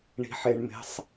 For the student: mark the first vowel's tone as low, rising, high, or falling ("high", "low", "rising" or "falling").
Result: low